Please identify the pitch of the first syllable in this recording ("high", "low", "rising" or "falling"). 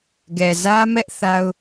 low